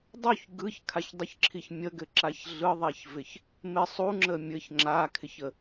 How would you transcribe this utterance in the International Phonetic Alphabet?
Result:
dˤ u ç ɡ ɯ ç kʰ a ç dˤ ə ç ǁʰ i ç mʲ ə ɡ ɘ ǁ a ç ɮ ɯ ðˤ ɛ ç v ɪ ç | m ɪ sˤ u ŋ͡ǁ ə mʲ ɘ ç ŋ͡ǁ a kʰ ɪ ç ə

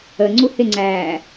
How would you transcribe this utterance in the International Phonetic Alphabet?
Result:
ə ŋ͡ǀ u h ɪ ŋ͡ǀ æː

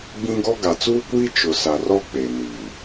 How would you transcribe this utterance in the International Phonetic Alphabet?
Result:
ɡ͡b ĩ˦ ɡ ɔ˦ ɡ a˨ t͡s uː˦ kʷ iː˦ t͡ʃ ʊ˨ s a˨ r ɔ˦ k͡p eː˨ n iː˨

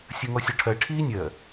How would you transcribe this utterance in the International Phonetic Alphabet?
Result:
sʲ ɜ ŋ ɔ sʲ ɔ ʈʰ ɜ ʈʰ iː nʲ ɜ

